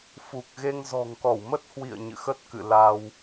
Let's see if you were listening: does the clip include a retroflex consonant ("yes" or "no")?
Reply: no